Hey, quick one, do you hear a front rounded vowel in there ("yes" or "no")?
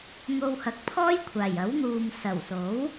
no